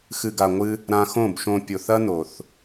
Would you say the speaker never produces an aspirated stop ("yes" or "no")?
yes